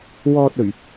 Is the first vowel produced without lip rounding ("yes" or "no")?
no